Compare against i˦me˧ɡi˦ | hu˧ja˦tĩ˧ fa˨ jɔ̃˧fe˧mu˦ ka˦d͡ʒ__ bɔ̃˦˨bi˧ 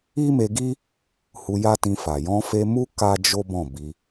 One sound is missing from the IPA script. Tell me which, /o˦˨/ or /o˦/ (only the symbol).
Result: o˦